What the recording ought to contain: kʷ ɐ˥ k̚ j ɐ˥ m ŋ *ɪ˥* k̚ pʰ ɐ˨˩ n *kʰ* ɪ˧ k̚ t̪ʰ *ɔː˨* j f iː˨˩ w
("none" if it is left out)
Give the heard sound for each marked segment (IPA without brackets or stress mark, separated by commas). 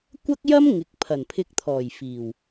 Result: ɪ˨˥, pʰ, ɔː˨˩